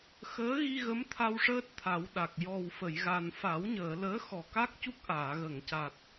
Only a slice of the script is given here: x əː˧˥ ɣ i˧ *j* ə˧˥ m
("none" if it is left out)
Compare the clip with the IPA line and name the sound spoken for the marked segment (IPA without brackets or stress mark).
ɣ